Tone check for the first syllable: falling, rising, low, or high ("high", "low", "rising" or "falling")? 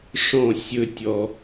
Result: falling